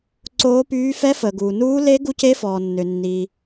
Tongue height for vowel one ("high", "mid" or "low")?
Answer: mid